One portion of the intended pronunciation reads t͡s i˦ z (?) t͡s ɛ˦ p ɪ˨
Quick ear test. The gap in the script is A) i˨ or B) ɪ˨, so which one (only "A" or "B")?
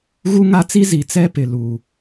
A